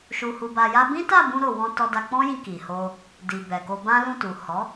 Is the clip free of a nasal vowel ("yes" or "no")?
no